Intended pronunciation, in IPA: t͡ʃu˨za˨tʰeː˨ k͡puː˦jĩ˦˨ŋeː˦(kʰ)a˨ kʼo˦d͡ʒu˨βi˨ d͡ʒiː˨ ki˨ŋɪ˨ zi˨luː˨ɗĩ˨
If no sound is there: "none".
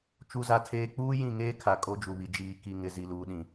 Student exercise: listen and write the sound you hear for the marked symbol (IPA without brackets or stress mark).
kʰ